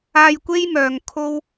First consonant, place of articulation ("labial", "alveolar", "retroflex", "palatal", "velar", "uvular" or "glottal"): palatal